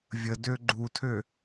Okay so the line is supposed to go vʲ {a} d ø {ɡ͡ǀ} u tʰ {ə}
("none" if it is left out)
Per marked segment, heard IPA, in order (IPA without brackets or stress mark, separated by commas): ə, ɡ͡ǃ, ø